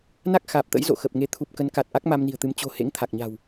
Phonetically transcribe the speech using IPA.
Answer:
n a˦˥ k̚ x aː˨˩ p̚ t̪ ə̰˧˥ j z o̰˧˨ x ə˨˩ p̚ ŋ e˨˦ t̪ʰ u˨˩ p̚ k ə˨˦ n k a˨˩ t̚ ʔ a˦˥ k̚ m a˧ m n i̤˨˩ ə̯ t̪ ɨ˨˦ m t͡ɕ o̤˨˩ h ḛ˧˥ ŋ t̪ʰ a˨˩ k̚ ɲ a̤˨˩ w

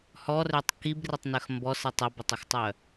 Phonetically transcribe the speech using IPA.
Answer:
h ɔ r ø tˤ k i b r ɪ tˤ n œ x m b ɔ s ə tˤ ə b œ tˤ ʏ x tˤ œ

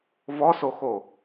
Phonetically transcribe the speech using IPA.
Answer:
v ɔ s o x o

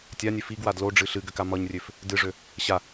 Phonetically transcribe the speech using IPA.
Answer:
tʲ a nʲ ø f i ɡ w a d l o ɖ͡ʐ ɨ ɬ ɨ ɡ ʏ k a m ʌ ɲ rʲ ø f | d ɨ ʐ ø | ɕ a

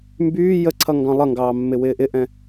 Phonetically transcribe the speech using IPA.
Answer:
m b yː j ə ǀʰ ʌ ŋ ɡ ɑ̃ lˠ ʌ ŋ ɡ ɑː mː ɪ w ɪː ʔ ɪ ʔ ɛ̃

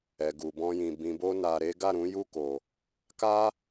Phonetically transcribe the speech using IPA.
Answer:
ɛ˨ ɡ u˨ b ɔ̃˧ j ĩ˨ b ĩ˨ b o˧ n a˨ ɾ e˨˦ ɡ a˦˨ ɾ ũ˨˦ j u˦˨ k o˨ | k a˦

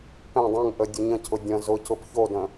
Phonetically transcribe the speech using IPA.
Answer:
p ɛ̃ dˤ ɛ̃ ŋ ʔ ə dʲ ʊ ɲ ə̃ cʰ ʊ dʲ ə̃ z ʊ c ʊ p ç o d ə̃

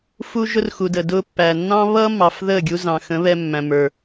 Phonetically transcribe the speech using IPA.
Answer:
f u˦ ʒ ʊ˦ r x u˨ d əː˨ d ʊː˧ pː æ˨ nː ɑ̃˦ β ʌː˦ mː ɑ˨ f ð əː˦˨ ɡʲ u˧ z ɑ̃˨ x ə̃˨˦ β ɛ˧ mː æ̃˨ m ə˞˨

